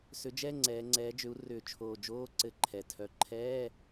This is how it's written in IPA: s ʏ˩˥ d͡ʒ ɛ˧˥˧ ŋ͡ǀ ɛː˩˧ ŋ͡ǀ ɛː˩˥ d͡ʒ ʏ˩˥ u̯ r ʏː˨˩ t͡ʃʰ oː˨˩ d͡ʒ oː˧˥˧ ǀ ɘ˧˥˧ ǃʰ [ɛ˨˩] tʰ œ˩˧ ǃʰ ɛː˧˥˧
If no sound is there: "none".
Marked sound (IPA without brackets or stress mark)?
ɛ˩˧